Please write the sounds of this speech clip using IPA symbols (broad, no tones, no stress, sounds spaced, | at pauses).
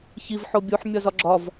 ç i v ħ o bʲ u ħ mʲ ɒ z ɒ ɡ͡ǁ ɒ v